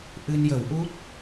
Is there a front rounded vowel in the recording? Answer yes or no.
no